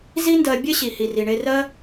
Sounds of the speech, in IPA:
z i˦ n d ɜ˧ bʲ e˦ ɕ i˨ h i˨ r i˨ ɳ e˧ r ɜ˦

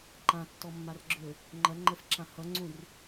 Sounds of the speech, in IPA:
ǃ ã tː ɔ mː a r ɡ͡ǁ ø | ŋ͡ǃ ɐ ŋ͡ǃ ə f ǁ ã h ʌ ŋ͡ǀ ũ r

